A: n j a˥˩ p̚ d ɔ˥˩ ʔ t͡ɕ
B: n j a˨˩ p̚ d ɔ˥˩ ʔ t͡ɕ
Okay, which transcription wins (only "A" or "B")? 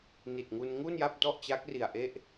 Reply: A